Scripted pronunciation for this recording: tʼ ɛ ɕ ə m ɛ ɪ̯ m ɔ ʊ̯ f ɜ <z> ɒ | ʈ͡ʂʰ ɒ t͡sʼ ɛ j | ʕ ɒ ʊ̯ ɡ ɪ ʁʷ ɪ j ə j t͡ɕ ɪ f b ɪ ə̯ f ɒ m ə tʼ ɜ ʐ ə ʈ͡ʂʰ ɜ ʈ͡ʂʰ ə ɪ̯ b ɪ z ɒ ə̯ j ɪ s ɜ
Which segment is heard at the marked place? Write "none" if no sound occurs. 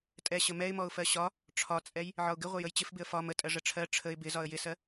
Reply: ɕ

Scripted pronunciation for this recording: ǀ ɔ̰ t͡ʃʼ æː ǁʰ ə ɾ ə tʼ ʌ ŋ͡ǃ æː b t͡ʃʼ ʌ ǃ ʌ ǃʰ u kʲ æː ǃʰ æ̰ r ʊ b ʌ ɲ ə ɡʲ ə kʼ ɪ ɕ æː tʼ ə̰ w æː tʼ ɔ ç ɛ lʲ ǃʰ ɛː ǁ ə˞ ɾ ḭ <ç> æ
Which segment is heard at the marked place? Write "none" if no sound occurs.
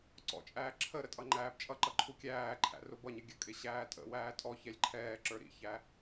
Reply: ç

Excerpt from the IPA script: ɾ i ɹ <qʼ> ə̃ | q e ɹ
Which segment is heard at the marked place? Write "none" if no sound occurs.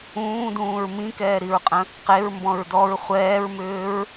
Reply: qʼ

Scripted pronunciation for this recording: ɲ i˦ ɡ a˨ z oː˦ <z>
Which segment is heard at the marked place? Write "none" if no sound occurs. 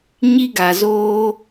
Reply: none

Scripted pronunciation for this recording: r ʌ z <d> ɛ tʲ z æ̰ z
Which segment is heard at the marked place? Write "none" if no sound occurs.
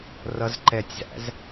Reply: ǃ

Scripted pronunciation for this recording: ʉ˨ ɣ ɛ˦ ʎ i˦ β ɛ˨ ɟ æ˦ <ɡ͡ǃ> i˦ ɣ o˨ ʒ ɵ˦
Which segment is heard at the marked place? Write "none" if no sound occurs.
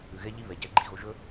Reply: ɡ͡ǃ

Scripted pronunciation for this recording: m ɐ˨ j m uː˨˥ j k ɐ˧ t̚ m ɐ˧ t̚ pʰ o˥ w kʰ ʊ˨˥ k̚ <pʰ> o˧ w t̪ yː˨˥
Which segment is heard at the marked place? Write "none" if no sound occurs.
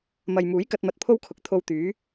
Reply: t̪ʰ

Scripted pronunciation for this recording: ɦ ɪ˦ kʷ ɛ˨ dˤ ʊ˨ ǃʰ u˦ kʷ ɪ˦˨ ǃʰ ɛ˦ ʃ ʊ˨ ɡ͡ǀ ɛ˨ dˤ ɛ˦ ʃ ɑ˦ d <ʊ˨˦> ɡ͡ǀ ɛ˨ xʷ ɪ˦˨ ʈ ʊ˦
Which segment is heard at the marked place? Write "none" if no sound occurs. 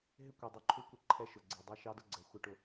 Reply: ʊ˦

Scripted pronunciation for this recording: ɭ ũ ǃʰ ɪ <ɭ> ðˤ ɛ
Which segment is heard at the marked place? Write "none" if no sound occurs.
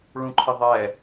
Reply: none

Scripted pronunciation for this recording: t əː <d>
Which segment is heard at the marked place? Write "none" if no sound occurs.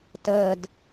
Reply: d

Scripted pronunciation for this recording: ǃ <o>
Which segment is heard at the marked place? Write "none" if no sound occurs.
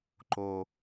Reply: o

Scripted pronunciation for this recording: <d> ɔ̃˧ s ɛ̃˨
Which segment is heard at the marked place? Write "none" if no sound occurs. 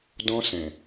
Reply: d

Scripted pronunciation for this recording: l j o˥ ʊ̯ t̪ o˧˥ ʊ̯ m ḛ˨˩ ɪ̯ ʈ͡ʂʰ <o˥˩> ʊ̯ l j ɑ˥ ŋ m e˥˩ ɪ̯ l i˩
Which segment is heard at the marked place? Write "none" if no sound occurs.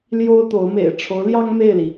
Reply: o˧˥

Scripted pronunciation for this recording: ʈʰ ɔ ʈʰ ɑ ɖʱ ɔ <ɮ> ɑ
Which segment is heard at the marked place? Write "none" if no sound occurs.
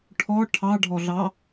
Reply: ɮ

